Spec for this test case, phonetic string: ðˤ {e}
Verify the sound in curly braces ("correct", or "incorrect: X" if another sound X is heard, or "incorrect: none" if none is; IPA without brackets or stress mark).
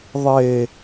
correct